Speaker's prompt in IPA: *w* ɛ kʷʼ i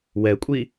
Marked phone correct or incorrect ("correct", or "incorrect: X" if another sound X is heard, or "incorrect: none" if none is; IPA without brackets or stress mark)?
correct